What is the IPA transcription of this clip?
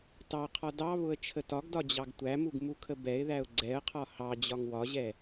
t ɑ qʰ ɒ d ɑ β ʊ ə̯ t͡ʃʰ ə t ɒ ɡ d ɒ d͡ʑ ɑ ɡ tʷ æ m u ɡ m u kʰ ə b ɛ ɪ̯ ð æ ʊ̯ ɡ͡ǀ ɛ ə̯ qʰ ɒ h ɑ d͡ʑ ɒ ŋ w ɒ ʑ ɛ

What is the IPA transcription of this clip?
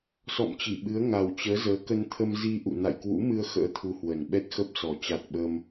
s ɔ̰˧˨ m t͡ɕ i˧˩ ɓ ɨ˨˦ ə̯ ŋ a˨˩ w t͡ɕ əː˨˦ z əː˨˦ k ə˧ n t̪ʰ ə˧ m z i˧ ʔ ṵ˧˨ n a̰˧˨ j k w ṵ˧˥ m ɨ˧ ə̯ x ə̰ː˧˥ t̪ʰ u˧ h w ə˨˩ n ɓ ɛ˦˥ t̚ x ə˦˥ p̚ s ɔ˨˩ t͡ɕ a˨˩ t̚ ɓ ə˧ m

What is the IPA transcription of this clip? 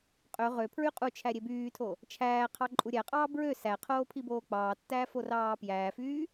qʼ ø ʁ ø pʰ ɹ y qʼ u t͡ʃʰ æ ɾʲ e b yː tʰ o | t͡ʃʰ æː qʰ ɑ ǃʼ u ɾʲ æ qʼ ɑː b ɹ ø s æ qʰ oː pʰ i b oː k͡p ɑː tː æː f o r ɑː p j æː f yː

